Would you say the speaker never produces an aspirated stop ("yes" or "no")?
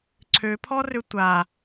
no